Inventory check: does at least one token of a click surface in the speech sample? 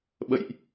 no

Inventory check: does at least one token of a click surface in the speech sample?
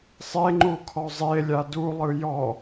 yes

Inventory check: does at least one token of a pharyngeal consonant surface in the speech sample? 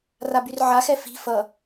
yes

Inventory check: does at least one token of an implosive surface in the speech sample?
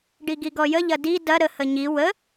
no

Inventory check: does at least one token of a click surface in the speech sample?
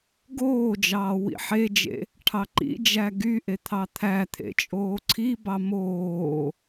yes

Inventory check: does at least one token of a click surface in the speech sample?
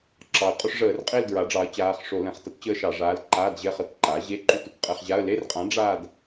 yes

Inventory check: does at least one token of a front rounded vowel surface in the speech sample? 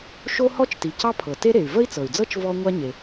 yes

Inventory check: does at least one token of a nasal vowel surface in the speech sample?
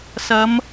no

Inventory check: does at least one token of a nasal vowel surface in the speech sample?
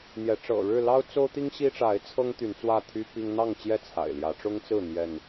no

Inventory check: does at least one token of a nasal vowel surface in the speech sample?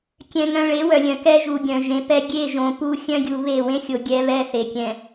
yes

